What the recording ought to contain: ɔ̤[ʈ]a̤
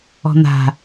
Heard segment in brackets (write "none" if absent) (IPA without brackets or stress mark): n̪